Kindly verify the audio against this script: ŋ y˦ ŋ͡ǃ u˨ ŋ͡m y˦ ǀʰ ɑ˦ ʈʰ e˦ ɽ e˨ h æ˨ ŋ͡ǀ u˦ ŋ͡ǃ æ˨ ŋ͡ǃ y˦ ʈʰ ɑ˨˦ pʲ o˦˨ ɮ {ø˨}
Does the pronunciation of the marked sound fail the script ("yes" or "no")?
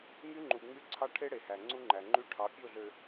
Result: no